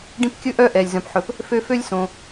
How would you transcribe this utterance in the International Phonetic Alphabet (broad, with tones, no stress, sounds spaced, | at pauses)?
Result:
ɖ ĩ˦ p kʲ ɵ˥ ʔ œ˦ ʔ ɛ˩ lʲ z œ̃˩ p ħ ɵ˩ p | f ø˦ f ø˦ lʲ s õ˩